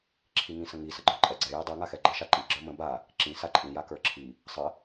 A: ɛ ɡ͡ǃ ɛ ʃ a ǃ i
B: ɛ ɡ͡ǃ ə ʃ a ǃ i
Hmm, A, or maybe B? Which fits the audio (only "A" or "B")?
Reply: B